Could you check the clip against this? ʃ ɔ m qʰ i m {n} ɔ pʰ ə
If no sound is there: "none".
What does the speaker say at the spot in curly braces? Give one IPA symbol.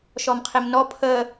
n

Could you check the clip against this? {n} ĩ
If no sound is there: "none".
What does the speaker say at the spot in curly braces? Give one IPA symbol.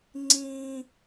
ŋ͡ǀ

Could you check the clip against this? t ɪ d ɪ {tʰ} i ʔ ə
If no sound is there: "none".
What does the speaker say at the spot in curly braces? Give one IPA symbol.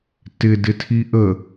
tʰ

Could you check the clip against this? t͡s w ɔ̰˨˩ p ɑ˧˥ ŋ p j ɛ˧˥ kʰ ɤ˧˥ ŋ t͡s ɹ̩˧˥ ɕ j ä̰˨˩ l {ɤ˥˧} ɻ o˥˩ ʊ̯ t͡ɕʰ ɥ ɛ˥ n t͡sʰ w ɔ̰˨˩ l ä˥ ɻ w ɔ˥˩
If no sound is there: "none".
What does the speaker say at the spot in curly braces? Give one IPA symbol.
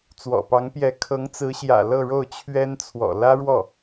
ɤ˥˧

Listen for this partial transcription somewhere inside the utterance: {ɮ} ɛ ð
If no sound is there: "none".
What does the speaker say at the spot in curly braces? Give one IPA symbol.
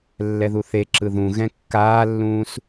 lː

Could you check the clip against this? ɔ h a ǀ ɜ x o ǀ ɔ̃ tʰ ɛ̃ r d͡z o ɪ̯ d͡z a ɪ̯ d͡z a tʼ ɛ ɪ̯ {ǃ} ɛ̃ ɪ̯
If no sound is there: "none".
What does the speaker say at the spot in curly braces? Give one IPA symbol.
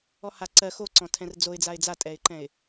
ǃ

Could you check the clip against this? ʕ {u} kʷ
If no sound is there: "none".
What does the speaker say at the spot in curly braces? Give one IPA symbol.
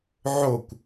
o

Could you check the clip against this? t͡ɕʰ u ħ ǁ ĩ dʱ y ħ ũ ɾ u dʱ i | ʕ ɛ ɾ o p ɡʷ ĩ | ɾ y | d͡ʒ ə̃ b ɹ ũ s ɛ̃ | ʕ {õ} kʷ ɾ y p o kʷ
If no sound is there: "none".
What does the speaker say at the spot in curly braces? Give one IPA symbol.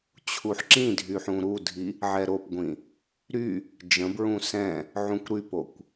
ũ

